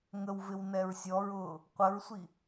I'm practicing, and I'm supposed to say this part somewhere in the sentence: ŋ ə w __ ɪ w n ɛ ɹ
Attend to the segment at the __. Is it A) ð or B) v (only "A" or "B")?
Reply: B